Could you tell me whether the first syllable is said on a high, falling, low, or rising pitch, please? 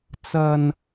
low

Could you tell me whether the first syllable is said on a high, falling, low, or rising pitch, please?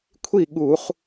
falling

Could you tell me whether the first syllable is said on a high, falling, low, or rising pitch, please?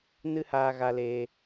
high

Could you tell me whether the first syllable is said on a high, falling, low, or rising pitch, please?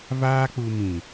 high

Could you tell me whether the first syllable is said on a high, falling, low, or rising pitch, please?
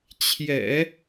low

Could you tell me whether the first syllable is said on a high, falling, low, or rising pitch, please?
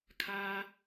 high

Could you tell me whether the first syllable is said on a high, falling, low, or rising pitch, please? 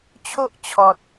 high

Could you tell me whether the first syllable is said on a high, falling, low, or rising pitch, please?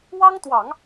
high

